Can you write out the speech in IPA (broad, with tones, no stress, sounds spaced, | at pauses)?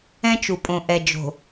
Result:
ɛ̃˦ t͡ʃ u˨ pʼ õ˨ ʔ ɛ˨ d͡ʒ o̤˨